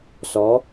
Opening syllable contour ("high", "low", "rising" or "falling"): rising